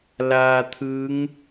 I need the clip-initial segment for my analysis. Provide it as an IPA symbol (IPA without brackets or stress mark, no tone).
l